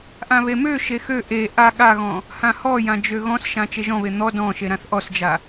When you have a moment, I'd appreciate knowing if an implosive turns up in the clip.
yes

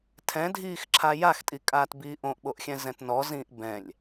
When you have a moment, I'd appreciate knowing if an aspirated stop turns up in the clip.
yes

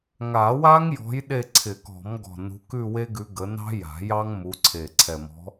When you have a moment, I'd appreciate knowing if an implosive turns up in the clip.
yes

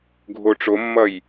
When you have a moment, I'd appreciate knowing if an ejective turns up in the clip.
no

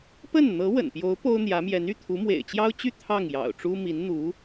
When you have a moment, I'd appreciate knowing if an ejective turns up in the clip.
no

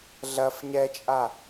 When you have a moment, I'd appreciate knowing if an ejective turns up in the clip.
yes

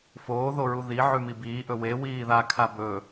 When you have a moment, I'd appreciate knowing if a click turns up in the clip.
no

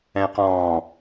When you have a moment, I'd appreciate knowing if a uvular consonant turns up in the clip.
yes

